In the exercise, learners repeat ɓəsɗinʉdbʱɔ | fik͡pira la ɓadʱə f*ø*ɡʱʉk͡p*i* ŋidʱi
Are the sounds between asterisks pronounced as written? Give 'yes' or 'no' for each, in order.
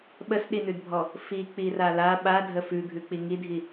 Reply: no, yes

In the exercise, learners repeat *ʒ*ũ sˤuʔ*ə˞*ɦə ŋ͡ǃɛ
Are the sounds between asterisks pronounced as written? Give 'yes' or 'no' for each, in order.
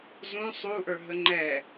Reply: no, yes

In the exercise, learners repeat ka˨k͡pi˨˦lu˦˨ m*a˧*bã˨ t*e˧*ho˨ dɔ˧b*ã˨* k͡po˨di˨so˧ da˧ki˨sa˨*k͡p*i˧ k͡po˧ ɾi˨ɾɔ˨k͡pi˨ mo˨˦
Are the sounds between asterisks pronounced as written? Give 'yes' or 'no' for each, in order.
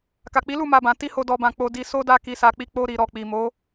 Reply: yes, no, yes, yes

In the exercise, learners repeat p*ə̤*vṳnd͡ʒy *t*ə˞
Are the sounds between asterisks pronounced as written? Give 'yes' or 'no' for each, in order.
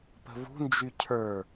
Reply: yes, no

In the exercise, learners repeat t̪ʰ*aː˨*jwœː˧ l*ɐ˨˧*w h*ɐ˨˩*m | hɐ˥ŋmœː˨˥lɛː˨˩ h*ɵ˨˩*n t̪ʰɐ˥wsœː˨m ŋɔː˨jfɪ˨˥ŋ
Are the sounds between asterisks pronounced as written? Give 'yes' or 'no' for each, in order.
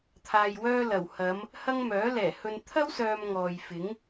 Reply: yes, no, no, no

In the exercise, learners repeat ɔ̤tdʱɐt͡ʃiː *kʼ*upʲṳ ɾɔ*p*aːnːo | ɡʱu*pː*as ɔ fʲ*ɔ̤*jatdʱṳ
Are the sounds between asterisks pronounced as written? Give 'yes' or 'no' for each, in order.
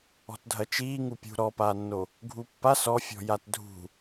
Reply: no, yes, yes, yes

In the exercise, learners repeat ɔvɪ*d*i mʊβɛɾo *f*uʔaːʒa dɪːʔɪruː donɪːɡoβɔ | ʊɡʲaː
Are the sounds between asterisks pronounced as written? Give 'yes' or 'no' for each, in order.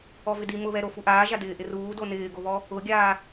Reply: yes, yes

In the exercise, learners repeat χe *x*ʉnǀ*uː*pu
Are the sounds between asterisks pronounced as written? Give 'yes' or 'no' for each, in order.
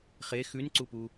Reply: yes, no

